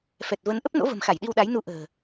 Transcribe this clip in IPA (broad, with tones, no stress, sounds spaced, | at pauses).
f ɛ˨˩ t̚ v ə˨˦ n ʔ ə˦˥ p̚ n o̰˧˥ v ə̤˨˩ m x a˧˩ j ɗ i˧ w ɗ a˨˦ j n u˧ ʔ ə̤ː˨˩